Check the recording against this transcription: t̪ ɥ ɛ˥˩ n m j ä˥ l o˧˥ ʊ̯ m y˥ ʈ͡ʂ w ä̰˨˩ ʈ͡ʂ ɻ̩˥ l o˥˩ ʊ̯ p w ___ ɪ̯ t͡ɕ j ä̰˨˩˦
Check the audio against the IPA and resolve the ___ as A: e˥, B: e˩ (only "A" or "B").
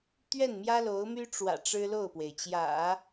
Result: B